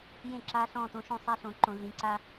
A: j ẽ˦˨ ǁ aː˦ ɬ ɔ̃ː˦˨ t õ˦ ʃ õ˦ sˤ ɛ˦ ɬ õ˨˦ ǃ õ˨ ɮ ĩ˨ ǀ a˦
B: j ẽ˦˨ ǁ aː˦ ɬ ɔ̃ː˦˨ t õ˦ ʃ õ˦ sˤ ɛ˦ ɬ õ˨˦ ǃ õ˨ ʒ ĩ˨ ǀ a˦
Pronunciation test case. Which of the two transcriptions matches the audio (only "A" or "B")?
A